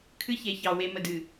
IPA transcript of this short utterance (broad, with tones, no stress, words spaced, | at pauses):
kʰɨ˦çe˨çɑ˨ we˨mə˨dɨ˨